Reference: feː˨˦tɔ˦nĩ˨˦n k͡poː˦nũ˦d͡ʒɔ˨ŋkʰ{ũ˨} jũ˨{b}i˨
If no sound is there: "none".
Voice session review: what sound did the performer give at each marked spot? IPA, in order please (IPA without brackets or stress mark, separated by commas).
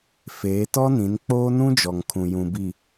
ũ˨, b